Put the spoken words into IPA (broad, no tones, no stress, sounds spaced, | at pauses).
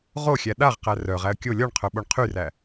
ʁ o xʲ æ ɗ a ʁ q æ r œ ʁ æ ə̯ kʲ o lʲ ɔ ɳ qʰ œ ɓ o ɳ qʰ y r æ